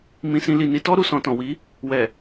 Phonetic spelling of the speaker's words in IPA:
m ĩ˧ s ĩ˧ l i˨ n i˨˦ t ɔ˦ ɾ u˧ s ɔ̃˨ t ɔ̃˨ w i˨˦ | w ɛ˨

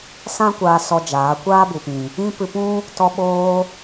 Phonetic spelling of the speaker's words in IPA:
s ã˦ kʷ aː˧ s ɔ˧ d͡ʒ aː˨˦ kʷ aː˦ b u˨ p ĩ˨ | ĩ˦ p ɨ˧ p ũ˦ | t ɔ˧ ɓ oː˧

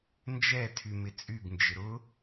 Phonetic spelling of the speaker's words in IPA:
n d͡ʒ ɛ tʰ y m ɪ t͡sʼ y ɡ n d͡ʒ ɪ ɾ ʊ

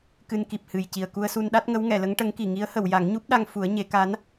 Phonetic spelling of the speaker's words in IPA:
k ɨ˧ n k i˨˩ p̚ h ɨ˨˩ j c i˨˩ ə̯ k u˧ ə̯ s u˧ n ɗ a˦˥ t̚ ŋ ə˧˥ w ŋ ɛ˨˩˨ l ə˧˥ ŋ ʈ ə˧˥ ŋ k i˨˩ ŋ i˧˥ ə̯ h ə˨˩˨ w j a˨˩˦ ŋ ɲ u˦˥ p̚ ɗ a˧ ŋ f u˨˩˦ ə̯ ɲ e˨˩˦ k a˧˥ n

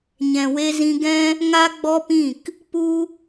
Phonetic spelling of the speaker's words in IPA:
ɲ ɛ̃˨ w e˧ z ĩ˧ ɡ ɛ̃˦ | ŋ a˦ ɡ͡b ɔ˦ p ĩ˦˨ k | p u˦

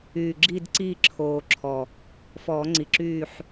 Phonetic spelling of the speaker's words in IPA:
yː˨˩ ɡ͡ǁ iː˦˨ d ǀ iː˦˨ ǁʰ oː˨˩ ǁʰ ɔ˨˩ | f ɔː˨˩˦ ŋ͡ǀ i˨˩ ǁ yː˦˨ ħ

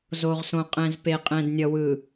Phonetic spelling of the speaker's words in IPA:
z o˨ ʁ s õ˨ qʼ ɛ̃˨ z p e˨ qʼ ɛ̃˨ d nʲ ʌ˨ w ɯ˨

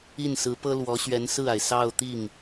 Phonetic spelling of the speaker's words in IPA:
i˥˩ n s ɹ̩˧˥ p ɤ˥ l w ɔ˧˥ ɕ ɥ ɛ˧˥ n s ɹ̩˥˩ a˩ ɪ̯ s ɑ˥˧ ʊ̯ t̪ i˥˩ ŋ

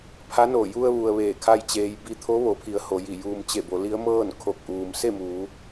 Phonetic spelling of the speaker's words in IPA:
pʰ a˧˥ n o˧˩ j u˧ ə̯ ʋ u˩ ə̯ ʋ eː˧˩ kʰ a˥˨ j t͡ɕ eː˧ j b i˧ t̪ʰ o˧˥ ʋ o˩˧ pʰ i˩˧ ə̯ h o˩˧ j i˧˩ j uː˧ m t͡ɕ e˧˩ b o˩˧ l i˧˥ ə̯ m ɤː˥˨ n kʰ o˧˩ k̚ ʔ uː˩ m s e˥˨ m uː˩˧

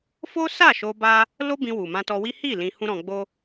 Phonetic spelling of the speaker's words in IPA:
f o˦ s a˦˨ ʃ o˧ b a˦ | l o˦ b ĩ˧ w u˨ m ã˧ t ɔ˧ w i˦ h i˦˨ l ĩ˧ h ũ˦ ɾ ɔ̃˧ ɡ͡b o˦

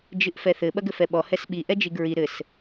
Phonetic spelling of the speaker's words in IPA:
d͡ʒ ɨ ʔ f ɛ θ ɘ ɓ ɐ ɡ ɘ f ɛ ɓ ɔ h ɛ s ɓ i ʔ ɛ d͡ʒ i ɡ ɹ i ɾ ɘ s

